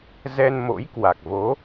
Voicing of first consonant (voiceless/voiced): voiced